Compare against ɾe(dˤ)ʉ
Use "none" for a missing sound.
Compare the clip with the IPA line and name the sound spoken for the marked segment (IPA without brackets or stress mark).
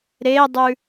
dˤ